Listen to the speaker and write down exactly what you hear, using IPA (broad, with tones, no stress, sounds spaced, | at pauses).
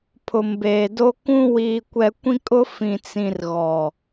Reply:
pʰ ʊ˨ m b eː˨ d o˦ k ũ˦ w iː˨ kʷ ɛ˨ kʷ ĩ˦ kʼ ʊ˦ f ĩ˨ t͡s ĩ˨ r ɣ ɔ˨